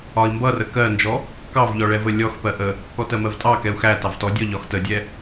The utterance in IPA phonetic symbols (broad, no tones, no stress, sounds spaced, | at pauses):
ɒ i̯ m b ʌ r ə k ɜ n d͡ʒ ɔ | k ɑ v ʎ ɔ ɭ ɛ v ə lʲ ɔ x p ɜ ʔ ə | k ɔ t ɜ m ɜ v tʼ ɑ k ɛ u̯ x æ t ɑ v t ɔ dʲ ɔ ʎ ɒ x t ə dʲ ɛ